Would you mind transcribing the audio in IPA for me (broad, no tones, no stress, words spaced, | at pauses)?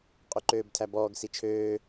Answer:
qʼʉǃøːbtʰæbɔːɡ sit͡ʃʰøː